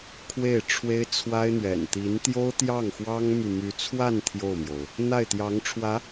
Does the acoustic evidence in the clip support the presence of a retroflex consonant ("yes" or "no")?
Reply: yes